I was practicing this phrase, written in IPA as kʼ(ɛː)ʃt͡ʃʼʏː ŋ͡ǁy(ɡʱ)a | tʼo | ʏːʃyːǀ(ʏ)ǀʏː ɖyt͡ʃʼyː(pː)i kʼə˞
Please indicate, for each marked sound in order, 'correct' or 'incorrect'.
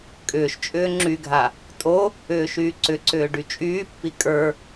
incorrect: ʏː, correct, correct, correct

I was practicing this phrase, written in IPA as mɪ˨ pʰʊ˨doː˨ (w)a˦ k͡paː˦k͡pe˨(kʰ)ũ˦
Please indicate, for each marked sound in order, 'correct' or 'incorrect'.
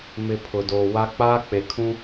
correct, correct

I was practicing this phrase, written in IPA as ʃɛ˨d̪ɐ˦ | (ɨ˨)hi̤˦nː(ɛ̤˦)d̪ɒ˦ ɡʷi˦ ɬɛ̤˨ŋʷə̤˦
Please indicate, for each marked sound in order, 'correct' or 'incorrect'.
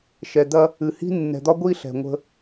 correct, incorrect: ɛ̤˨

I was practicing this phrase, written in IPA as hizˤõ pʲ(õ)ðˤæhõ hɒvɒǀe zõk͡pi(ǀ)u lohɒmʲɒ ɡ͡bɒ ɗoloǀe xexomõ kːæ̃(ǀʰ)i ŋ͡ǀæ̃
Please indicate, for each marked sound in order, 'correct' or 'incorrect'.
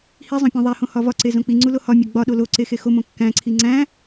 correct, incorrect: ŋ͡ǀ, correct

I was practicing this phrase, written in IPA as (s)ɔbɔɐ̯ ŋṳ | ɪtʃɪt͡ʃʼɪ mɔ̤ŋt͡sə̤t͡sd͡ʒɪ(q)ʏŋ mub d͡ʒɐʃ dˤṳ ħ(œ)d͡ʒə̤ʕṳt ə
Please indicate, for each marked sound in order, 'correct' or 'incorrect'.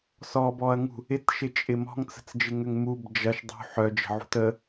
correct, incorrect: ŋ, correct

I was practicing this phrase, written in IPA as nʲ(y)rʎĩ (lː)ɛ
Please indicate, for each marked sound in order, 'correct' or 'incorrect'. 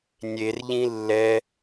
incorrect: e, correct

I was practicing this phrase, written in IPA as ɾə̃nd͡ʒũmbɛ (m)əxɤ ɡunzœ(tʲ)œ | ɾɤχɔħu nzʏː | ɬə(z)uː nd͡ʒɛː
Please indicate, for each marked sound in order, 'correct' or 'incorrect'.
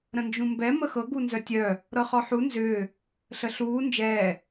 correct, correct, incorrect: ɬ

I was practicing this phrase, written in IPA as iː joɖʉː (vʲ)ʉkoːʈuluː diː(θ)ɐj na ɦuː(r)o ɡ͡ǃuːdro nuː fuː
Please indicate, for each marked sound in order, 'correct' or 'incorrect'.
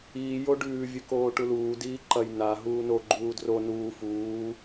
correct, incorrect: ǃ, incorrect: n

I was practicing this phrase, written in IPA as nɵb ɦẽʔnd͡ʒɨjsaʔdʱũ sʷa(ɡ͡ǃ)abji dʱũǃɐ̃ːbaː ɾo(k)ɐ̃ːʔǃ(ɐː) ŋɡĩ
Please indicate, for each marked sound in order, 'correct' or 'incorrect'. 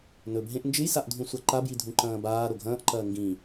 incorrect: ǃ, incorrect: ɡʱ, correct

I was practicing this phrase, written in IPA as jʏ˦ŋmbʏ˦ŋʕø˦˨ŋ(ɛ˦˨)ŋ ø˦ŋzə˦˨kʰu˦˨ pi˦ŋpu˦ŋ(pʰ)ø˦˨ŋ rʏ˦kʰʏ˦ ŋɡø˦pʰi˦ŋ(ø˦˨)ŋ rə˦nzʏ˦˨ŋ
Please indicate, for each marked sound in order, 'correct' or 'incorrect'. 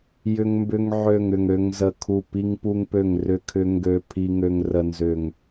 incorrect: ʏ˦˨, incorrect: p, incorrect: ø˦

